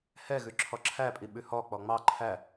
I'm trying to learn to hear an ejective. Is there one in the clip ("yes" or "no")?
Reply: yes